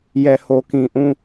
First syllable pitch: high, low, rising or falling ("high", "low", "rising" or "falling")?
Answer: low